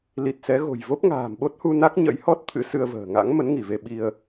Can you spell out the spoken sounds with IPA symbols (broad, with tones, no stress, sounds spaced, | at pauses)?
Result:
l i˨˩ t̚ s ɛ˨˦ ɣ o̤˨˩ j v o˦˥ p̚ ŋ a̤ː˨˩ m ɓ o˦˥ t̚ h u˧ n a˦˥ k̚ ɲ ə̰˧˥ j h ɔ˦˥ t̚ t̪ʰ ɨ̰˧˥ s ɨ˧ ə̯ v ə̤ː˨˩ ŋ a̰˧˥ ŋ m ə˨˦ n ŋ i˧˩ v e˧ ɓ i˧ ə̯